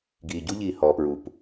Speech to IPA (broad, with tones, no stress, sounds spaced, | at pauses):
ɡ iː˨ ɟ u˦ ʎ iː˨ h ɔː˨ p ɹ u˨ p